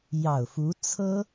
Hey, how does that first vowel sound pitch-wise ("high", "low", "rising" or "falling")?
low